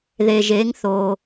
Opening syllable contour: low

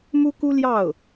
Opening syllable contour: high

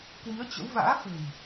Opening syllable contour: rising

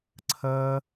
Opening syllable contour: high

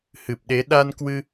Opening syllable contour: low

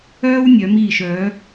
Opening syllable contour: high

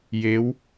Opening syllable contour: rising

